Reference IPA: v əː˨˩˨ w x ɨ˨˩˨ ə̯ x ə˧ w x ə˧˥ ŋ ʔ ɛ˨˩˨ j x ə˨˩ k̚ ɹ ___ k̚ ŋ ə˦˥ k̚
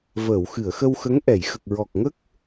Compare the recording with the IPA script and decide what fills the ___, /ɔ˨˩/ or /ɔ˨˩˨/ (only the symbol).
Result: ɔ˨˩